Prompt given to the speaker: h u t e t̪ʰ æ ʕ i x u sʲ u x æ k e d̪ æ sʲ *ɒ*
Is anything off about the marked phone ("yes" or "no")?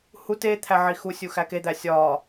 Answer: no